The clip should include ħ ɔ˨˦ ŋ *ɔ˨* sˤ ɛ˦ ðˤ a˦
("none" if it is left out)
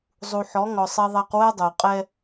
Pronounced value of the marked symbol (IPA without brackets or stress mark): ɔ˨